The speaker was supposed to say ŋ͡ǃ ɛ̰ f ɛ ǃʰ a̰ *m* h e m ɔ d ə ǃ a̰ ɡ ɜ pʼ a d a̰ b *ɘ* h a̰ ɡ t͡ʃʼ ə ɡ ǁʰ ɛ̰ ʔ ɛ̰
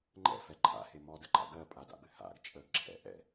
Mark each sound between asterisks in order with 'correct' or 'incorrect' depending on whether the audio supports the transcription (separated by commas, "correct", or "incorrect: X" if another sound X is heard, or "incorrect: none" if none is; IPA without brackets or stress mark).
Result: incorrect: none, correct